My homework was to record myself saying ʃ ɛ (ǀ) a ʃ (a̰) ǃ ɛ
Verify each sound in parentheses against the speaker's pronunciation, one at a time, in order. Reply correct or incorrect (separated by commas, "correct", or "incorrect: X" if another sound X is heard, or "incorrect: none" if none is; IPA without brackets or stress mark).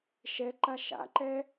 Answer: incorrect: ǃ, correct